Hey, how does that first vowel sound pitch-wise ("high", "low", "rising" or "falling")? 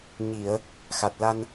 low